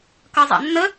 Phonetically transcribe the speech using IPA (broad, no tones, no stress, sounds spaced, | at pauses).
k ʌ zˤ a̰ nː ə